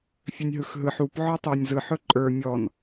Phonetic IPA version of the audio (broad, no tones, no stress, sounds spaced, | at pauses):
fʲ ɵ nʲ ɦ ɯ x ɦ ɯ ħ u p ʕ ɔ tˤ ə˞ nʲ z ɯ ħ ɵ ǃʼ ə˞ mʲ ɔ n